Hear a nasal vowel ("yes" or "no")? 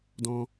yes